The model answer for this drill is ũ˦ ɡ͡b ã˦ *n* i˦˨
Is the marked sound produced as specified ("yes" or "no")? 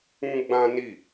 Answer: yes